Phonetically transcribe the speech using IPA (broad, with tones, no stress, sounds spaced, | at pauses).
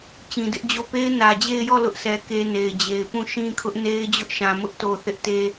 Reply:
t͡ɕ ĩ˨ d ɪ˦ ʔ d͡ʑ o˦˨ p e˦ ɪ̯ n ä˨ d͡ʑ e˦˨ ɪ̯ j ɔ˦˨ l ʊ˦ ʔ sʰ ɛ˨ k e˦ n e˨ ɪ̯ d͡ʑ e˨ ɪ̯ p ũ˦˨ ʃ ĩ˦ kʰ ʊ˦ ʔ n e˦ ɪ̯ d͡ʑ ʊ˦ ʔ ʃ ã˨ m ʊ˦ ʔ t o˨ θ ɪ˦ ʔ t e˦